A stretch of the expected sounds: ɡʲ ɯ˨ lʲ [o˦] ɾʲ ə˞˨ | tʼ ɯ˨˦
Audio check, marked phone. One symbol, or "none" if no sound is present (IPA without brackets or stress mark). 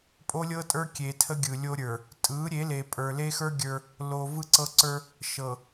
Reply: o˦